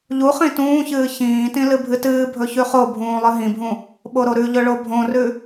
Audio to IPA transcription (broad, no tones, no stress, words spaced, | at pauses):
ʎuχĩ tũːçɨː çĩːtĩ lɨbʱɨtɨːbʱɵ çʉχobʱũː lˠɨɦĩbʱũ | ɓoɾoɾʉʎɵ ɭobʱõrʉ